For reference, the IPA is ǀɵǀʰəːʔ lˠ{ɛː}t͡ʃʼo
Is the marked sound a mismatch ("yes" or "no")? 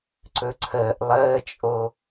yes